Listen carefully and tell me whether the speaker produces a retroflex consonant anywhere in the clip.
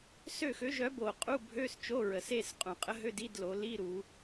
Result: no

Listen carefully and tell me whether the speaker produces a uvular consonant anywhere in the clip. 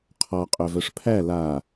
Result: yes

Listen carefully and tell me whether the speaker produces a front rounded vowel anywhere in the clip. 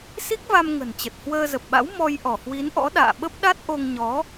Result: no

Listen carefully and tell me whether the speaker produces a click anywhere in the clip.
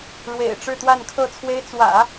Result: no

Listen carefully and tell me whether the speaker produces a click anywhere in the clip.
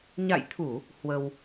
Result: no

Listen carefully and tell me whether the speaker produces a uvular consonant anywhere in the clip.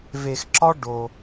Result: no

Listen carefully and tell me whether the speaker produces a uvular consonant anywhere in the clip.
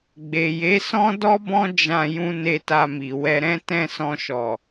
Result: no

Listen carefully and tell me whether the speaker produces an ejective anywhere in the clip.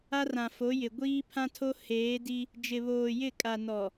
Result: yes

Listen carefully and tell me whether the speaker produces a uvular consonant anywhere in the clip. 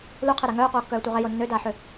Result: yes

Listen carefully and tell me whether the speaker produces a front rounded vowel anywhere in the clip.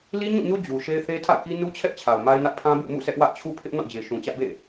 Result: no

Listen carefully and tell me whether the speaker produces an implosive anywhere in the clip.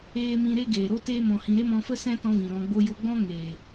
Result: no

